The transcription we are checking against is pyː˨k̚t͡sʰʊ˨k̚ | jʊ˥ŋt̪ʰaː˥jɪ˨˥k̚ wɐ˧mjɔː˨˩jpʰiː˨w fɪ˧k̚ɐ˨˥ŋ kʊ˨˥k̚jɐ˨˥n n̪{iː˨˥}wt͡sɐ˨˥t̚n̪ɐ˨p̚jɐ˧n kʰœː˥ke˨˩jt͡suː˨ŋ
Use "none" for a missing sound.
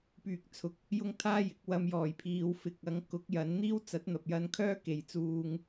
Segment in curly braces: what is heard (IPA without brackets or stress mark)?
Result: iː˥